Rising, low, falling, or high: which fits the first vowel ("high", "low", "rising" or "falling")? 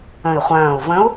low